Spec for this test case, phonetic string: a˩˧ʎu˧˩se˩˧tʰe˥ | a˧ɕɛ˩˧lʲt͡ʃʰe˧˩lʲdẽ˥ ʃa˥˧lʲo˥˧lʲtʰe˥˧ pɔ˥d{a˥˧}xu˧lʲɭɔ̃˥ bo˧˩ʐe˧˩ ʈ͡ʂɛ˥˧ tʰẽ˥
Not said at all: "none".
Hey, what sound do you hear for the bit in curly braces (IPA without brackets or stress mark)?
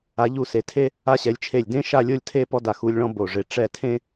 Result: a˧˩